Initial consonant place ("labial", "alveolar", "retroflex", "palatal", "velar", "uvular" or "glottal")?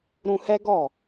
alveolar